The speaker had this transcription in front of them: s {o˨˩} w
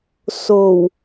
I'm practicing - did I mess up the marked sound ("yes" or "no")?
no